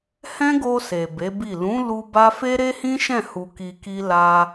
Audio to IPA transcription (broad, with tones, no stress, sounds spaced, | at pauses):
h ɛ̃˦ ɡ o˧ s e˨ b e˨˦ b i˦˨ l ũ˨˦ l u˧ b a˦ f e˦ ɾ e˦ h ĩ˦ ʃ ɛ̃˦˨ h u˧ k i˧ k i˦ l a˧